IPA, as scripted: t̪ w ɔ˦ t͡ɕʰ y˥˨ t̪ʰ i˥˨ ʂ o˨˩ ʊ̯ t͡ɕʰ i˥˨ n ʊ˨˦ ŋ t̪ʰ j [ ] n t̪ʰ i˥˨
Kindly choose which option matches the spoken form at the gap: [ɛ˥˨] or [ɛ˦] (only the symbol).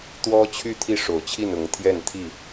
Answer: ɛ˥˨